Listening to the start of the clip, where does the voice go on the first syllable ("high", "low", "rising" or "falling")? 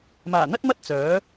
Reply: low